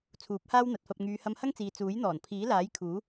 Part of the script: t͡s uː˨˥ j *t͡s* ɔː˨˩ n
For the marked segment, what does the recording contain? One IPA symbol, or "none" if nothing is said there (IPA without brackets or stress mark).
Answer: n̪